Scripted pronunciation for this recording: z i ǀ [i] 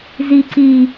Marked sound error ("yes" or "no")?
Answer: no